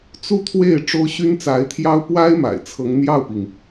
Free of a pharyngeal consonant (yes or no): yes